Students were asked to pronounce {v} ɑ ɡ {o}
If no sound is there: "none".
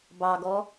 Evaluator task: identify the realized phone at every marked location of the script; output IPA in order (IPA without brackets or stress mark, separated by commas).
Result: b, ɔ